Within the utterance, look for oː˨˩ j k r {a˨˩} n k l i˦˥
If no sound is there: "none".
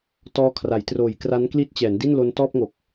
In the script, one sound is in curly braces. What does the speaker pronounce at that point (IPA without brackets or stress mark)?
a˦˥